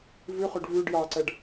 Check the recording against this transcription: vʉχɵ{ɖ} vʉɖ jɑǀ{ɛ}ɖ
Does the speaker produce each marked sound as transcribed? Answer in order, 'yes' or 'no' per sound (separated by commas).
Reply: yes, yes